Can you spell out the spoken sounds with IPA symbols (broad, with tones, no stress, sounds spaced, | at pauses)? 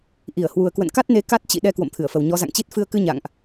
ʔ i˧˩ ə̯ h w u˨˩ ə̯ k w ə̰˧˨ n k a˦˥ t̚ n e˨˦ k a˦˥ t̚ t͡ɕ ḭ˧˨ ɗ ɛ˧ k w o̰˧˨ m t̪ʰ ɨ˧˩ ə̯ f ə˨˩ w ɲ ɔ˨˦ z a̰˧˨ ŋ t͡ɕ i˦˥ t̚ f ɨ˧ ə̯ k ɨ˧ ɲ a̰˧˨ ŋ ʔ